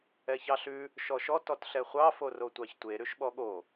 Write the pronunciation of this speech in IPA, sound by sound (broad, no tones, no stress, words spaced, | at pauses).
ɛçɑɬʉ | ʃɔʃɔ tɔtɬɛχʷɑ forotʷɑçtʷe ɾʉʃɓɔɠo